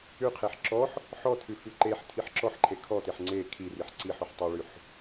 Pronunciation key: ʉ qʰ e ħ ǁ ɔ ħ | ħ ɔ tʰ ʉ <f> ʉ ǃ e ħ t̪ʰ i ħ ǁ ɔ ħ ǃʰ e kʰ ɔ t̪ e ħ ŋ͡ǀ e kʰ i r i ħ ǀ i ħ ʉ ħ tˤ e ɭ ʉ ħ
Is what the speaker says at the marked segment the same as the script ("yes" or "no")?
yes